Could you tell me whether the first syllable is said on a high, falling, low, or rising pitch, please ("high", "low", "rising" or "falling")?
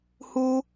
high